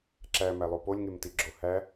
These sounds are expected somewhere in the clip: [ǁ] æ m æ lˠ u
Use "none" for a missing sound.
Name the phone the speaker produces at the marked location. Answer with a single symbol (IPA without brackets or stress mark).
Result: ǁ